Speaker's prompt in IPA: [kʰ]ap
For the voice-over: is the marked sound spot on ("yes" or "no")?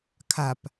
yes